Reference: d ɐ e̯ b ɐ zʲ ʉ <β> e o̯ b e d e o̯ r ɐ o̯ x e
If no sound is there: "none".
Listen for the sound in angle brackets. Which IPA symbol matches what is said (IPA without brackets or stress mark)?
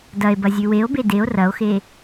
w